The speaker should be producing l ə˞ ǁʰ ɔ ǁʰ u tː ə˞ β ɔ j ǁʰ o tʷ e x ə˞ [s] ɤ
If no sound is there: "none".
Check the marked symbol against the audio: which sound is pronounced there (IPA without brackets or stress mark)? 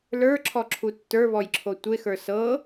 s